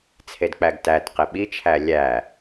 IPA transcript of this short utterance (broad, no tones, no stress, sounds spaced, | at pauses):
t͡sʰ e d k͡p æ ɡ t æ t q e ɓ i t͡ʃʰ æ lʲ æ